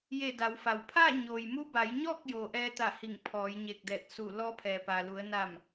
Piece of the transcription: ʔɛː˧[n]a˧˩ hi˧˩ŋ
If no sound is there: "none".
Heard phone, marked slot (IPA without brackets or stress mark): t̪